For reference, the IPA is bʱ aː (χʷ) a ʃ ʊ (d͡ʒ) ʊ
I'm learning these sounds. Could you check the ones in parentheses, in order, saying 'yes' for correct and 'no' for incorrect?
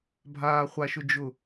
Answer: yes, yes

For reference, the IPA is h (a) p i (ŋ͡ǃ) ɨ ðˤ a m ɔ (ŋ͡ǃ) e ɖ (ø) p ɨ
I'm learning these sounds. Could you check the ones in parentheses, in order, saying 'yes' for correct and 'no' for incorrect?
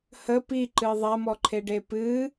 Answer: no, no, no, no

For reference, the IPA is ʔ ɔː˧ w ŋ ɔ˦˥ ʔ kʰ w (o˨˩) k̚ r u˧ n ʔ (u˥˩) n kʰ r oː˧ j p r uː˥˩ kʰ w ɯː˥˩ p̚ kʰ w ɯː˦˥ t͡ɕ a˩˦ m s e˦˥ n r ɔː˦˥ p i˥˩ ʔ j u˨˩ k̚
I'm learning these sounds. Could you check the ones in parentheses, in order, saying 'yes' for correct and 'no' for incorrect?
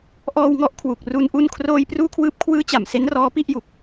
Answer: no, no

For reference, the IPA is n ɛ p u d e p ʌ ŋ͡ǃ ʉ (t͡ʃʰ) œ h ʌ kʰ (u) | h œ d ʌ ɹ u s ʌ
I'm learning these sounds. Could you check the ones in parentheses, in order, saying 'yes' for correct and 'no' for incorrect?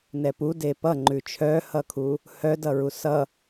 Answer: yes, yes

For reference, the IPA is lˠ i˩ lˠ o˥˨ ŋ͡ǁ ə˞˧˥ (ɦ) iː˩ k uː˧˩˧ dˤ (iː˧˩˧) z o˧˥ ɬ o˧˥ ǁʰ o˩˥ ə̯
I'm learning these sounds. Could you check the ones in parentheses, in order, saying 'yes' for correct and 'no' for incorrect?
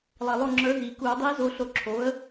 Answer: yes, no

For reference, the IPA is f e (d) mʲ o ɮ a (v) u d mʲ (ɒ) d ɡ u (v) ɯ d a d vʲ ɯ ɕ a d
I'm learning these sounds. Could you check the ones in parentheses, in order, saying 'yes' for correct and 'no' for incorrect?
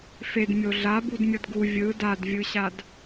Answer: yes, no, no, no

